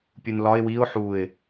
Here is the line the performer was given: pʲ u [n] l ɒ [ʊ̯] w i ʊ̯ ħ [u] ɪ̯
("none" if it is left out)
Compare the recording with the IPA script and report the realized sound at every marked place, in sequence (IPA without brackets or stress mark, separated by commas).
n, ɪ̯, u